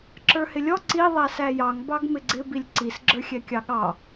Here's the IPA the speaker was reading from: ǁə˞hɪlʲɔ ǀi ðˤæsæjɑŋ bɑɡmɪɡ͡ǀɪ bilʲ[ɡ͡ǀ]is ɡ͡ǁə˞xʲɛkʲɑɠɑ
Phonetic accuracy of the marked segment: incorrect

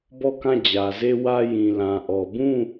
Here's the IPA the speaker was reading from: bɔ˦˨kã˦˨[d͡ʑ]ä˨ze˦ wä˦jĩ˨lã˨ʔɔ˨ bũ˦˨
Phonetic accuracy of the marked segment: correct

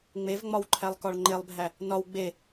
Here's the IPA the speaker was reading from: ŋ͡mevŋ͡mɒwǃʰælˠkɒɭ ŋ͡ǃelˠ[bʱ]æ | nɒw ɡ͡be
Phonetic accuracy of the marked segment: correct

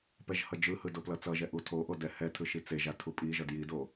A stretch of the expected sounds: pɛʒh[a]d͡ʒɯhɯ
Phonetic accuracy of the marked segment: incorrect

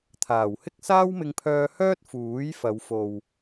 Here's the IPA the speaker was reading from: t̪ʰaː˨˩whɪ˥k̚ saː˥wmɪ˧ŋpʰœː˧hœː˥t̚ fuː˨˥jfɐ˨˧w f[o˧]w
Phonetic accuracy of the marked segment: incorrect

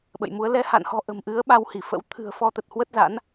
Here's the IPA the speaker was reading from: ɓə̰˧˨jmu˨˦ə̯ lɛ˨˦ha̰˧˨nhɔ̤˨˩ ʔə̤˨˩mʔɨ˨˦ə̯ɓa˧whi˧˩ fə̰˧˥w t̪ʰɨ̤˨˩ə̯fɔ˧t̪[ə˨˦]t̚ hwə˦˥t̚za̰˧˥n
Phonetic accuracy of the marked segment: incorrect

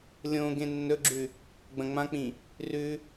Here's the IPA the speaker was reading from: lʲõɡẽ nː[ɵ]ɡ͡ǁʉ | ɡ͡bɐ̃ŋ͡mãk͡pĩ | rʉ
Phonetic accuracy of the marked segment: correct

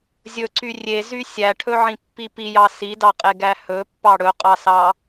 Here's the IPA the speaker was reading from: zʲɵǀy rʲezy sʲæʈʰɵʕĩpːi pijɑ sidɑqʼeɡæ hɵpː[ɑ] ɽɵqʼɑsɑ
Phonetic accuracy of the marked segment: correct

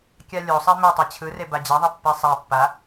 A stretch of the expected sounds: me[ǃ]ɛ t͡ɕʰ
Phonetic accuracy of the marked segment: incorrect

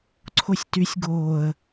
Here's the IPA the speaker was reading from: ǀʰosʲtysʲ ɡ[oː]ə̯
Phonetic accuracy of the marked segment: correct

